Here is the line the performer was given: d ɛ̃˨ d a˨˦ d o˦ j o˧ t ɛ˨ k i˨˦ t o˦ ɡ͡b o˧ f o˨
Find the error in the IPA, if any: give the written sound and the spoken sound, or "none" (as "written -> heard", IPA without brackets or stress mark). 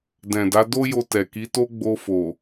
none